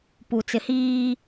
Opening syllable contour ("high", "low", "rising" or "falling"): low